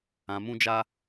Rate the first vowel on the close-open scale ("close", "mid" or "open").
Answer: open